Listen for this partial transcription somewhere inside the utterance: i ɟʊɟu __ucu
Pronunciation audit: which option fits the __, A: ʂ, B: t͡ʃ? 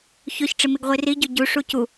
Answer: A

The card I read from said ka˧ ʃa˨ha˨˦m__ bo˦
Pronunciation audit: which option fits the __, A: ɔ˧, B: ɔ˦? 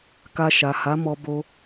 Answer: A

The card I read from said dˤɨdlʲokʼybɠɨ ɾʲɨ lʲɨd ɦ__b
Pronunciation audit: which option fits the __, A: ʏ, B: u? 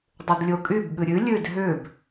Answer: A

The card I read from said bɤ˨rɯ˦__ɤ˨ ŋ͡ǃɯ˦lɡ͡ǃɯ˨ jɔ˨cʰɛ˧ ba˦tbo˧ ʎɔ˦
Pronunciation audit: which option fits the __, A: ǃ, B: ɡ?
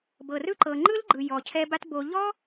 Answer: A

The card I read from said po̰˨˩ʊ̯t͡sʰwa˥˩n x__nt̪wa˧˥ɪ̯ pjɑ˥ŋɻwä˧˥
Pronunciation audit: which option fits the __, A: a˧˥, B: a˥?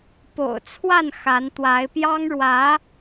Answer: A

